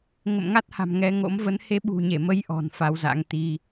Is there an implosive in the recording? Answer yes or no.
yes